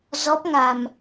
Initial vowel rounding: rounded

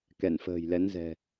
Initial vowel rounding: unrounded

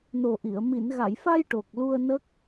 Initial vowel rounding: rounded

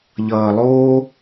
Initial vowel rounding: unrounded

